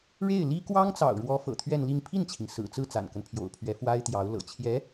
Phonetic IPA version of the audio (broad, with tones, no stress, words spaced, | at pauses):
ɻe˥˩ɪ̯ li˥ kwɑ˥ŋt͡sɑ̰˨˩ʊ̯ɻwɔ˧˥ fɤ̰˨˩t̪ʰɥɛ˥˧nli˥˧ŋ pʰi˥˩nt͡ɕʰi˩ŋ sɹ̩˨˩t͡sɹ̩˥˩ t͡sa̰˨˩nkə˦npʰjo̰˨˩ʊ̯pʰɥɛ˧˥ fwa˥ɪ̯t̪jɑ˧˥ʊ̯ lɤ̰˨˩t͡ɕʰjɛ˧˥